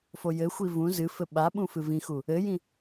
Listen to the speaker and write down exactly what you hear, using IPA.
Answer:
fojɘxʷi vũ zɨfɘ ɓaɓũ fɨvĩxu | ɘjĩ

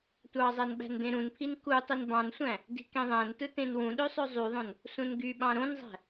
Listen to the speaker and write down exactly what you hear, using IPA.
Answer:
tʷɑzˤæn ɓæ̤ndẽɾũnpʰin ku tˤinbɑ̃nsʷæ̃ | di̤kẽðˤæ̃ntɯ tẽnwũɗø sˤøzˤyðˤõn | sũnɡyɓɑ̃ ɾõnzˤæ̤

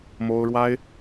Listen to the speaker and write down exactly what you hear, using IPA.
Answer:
mo˥ʊ̯ɻwa˥ɪ̯

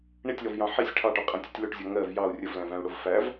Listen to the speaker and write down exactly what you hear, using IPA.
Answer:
ɳitʲlɔvjɑ̃ ħisʲ ʈʰɑʈɔqʼɛ̃tʲʊtʲ lʊʈzʲɔ ŋɜv jɑu̯ rʲəvlæ̃væ̃u̯ɽʊv fæv

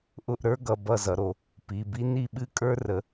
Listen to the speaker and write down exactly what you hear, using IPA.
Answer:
ʔʊ˦˨ʔɾə˞˦ɡʌ˩˧˩ bʌ˦˨zʌ˩˧ɾo˩˧ | pi˩˧˩bi˦ ni˦˨ɓɨ˦ kʼə˞˦rə˩˧

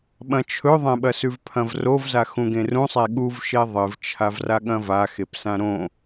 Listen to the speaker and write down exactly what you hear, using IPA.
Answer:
ɓɐ̃t͡ʃʰɵðˤẽɓɐ sʉvpʰɐ̃vrovza xũɡẽrũsˤe ɠuvʃe ðˤɨvt͡ʃʰavraɠɐ̃ vaxep sãɾõ

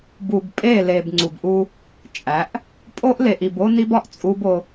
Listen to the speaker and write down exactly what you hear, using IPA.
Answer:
bu˨bpʼe˦˨le˨b ŋ͡ǀu˨bʔu˦ | t͡ʃʼæ˨˦ʔ | pʼo˦ʔle˨ʔi˨b o˦ni˦bɒ˦ʔ t͡sʼu˦bo˦

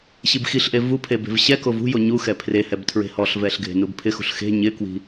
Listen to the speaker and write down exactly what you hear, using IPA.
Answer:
ɕibxiɬʔe vupʰe be̤vɕɛkov ṳjo ɲuxɛ pʰrehɛb tʰɹe̤hɔɬvɛɬ ɡʱe̤nubpʰɪxṳɬ xe̤ ɲɪkwi̤

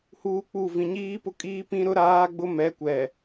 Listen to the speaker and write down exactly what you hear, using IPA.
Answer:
huː˦k͡pu˦˨ vĩ˨ɲiː˦pʊ˦kʼiː˦ pĩ˦ɾʊ˦ɾaː˦ɡ͡bʊ˦ mɛ˨˦kʷɛ˨

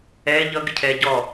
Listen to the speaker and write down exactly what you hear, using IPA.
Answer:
ɛ ʎʌɡɪcʰɛ ɟɔ

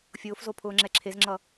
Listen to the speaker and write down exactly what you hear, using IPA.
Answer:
fʲʊːfzopʰʊːŋ͡ǁɛ ǁʰezŋ͡ǁʌ

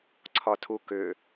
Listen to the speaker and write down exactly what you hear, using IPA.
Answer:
ǀʰɒtʰukʏ

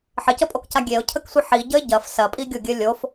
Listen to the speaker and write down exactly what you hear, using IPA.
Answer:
ħəcəpʼokca ɡʲeʊ̯cʰəksʷi ħiɟəɪ̯ ɟɐf sɐpʼiɡʲoɡʲɘ lʲof

